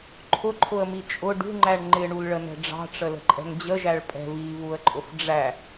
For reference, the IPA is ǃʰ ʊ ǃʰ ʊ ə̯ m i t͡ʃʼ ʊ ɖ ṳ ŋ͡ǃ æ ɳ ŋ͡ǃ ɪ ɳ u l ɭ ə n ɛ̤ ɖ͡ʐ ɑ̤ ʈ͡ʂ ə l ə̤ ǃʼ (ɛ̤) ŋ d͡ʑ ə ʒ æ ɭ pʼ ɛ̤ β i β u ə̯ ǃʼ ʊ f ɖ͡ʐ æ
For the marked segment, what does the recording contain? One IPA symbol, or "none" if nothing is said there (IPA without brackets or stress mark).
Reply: ɛ̤